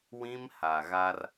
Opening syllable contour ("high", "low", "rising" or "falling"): high